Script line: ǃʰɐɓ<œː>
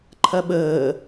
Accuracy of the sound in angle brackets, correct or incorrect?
incorrect